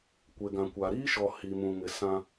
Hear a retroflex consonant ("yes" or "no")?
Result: no